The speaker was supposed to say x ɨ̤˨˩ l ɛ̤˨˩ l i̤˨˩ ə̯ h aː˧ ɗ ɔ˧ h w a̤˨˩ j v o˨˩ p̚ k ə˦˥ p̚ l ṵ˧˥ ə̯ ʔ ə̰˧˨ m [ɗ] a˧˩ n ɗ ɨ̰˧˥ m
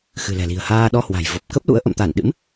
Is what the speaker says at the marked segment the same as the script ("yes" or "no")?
no